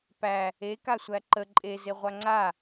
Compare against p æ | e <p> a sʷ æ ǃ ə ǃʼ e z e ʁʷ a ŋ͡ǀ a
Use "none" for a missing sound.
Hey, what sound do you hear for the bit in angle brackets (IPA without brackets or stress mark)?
k